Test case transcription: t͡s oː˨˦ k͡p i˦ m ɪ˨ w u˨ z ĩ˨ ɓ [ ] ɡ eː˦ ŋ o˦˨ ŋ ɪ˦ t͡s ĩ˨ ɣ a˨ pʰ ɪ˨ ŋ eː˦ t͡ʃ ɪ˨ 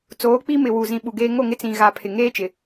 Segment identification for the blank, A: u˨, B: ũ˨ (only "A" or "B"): A